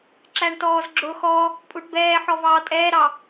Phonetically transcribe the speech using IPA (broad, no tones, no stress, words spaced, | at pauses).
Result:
ǁæɳtɔːzɡ͡ǁʊːxɔ | pʼuʈbɛː ħɔvɑːtʼɛːɾɑ